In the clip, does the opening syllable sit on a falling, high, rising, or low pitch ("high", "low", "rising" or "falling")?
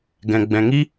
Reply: low